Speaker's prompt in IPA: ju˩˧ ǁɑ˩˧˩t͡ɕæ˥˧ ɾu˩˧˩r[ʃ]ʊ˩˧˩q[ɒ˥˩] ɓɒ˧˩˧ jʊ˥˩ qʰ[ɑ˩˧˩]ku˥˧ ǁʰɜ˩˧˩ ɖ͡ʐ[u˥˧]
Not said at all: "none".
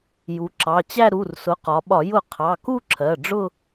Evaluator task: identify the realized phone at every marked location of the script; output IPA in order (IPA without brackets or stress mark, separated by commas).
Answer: s, ɒ˩˧, ɑ˩˧˩, ʊ˥˧